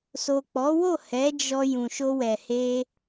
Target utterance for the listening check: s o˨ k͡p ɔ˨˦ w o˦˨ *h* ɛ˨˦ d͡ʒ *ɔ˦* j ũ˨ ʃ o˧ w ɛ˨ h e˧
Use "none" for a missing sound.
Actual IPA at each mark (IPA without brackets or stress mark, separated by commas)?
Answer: h, ɔ˧